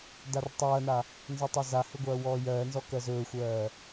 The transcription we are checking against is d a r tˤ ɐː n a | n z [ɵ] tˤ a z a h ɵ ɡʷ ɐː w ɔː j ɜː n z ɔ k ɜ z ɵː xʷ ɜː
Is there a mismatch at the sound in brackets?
yes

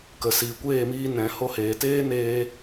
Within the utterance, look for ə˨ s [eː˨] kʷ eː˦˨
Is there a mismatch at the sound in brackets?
yes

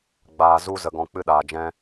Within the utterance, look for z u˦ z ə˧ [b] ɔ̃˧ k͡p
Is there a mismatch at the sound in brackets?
yes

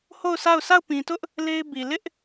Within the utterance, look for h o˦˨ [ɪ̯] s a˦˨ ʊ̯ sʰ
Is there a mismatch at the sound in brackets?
yes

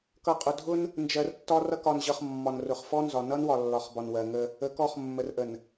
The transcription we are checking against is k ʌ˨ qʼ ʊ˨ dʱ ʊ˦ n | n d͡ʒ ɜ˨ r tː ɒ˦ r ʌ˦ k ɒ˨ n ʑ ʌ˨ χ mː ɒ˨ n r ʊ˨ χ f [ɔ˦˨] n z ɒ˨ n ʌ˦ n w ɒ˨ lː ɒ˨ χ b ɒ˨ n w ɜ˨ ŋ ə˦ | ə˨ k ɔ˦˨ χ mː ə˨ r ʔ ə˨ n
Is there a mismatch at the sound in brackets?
yes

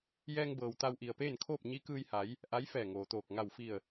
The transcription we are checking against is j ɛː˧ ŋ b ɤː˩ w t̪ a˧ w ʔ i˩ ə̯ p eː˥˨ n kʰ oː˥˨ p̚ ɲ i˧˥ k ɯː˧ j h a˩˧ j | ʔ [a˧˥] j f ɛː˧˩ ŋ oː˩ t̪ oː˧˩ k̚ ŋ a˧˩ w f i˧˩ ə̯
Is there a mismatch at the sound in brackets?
no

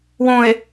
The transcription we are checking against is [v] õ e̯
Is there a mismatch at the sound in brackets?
yes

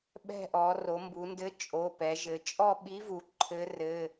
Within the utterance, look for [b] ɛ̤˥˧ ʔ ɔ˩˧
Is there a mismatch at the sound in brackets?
yes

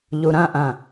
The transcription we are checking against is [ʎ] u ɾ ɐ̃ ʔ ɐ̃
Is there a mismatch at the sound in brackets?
no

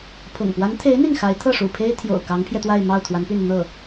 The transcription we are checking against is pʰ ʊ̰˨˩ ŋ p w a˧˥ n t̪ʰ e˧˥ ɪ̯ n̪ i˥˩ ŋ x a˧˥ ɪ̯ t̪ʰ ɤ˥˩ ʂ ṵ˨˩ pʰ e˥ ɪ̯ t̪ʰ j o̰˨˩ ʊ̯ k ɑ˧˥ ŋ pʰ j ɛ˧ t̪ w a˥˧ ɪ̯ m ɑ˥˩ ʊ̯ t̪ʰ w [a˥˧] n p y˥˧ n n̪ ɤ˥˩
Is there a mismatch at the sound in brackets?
yes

